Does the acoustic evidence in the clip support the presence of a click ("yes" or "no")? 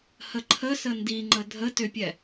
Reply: yes